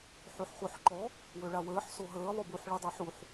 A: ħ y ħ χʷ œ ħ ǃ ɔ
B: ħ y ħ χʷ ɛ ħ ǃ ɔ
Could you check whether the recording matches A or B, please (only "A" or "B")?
A